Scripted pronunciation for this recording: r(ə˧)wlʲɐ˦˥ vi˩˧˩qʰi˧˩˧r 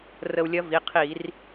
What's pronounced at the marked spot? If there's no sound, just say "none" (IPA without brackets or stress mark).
ə˧